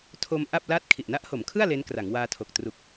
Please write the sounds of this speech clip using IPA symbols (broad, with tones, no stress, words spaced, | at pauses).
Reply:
tʰo˧m ʔa˥˩p̚la˥˩t̚ kʰi˨˩ʔna˦˥ʔho˩˦mkʰɯ˥˩a̯ le˦˥nkra˩˦ŋwaː˧tʰo˨˩k̚ tru˨˩k̚